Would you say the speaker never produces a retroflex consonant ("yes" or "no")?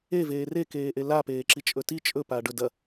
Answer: no